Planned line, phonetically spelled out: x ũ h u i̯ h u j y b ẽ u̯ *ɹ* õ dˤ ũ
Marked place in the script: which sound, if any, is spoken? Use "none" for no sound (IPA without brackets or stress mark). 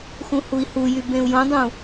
j